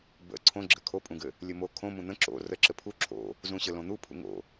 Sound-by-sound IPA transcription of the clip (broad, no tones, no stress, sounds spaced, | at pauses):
b ə̰ ǀʰ õ ɡ͡ǁ ɘ kʰ o pʼ ũ ɡ ɘ | lʲ ɘ m o kʰ õ m ũ n̪ ə̃ ǁ o̰ r ə ǁ ɘ pʰ u ǁʰ o̰ | z ũ ɕ ɘ l õ n̪ u pʰ ṵ ŋ o̰